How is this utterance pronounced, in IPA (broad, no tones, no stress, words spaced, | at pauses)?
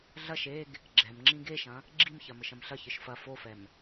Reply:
ɮɐʃ eɡ | ɡ͡ǁɛmŋ͡ǁĩ ɡeʃɐ̃ | ɡ͡ǁimçɐ mɘʃɐ̃mɬɐçɨʃ fɐ fofɛm